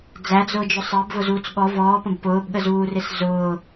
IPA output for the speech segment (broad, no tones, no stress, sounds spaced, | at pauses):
d͡z æ d͡z ʊː d͡ʒ ʊ sˤ ɜ b v ʊ z uː t͡s ɠ ɔ v ɔː p ə̃ b p ʊː b ɠ ə z uː r ɪ s z ʊː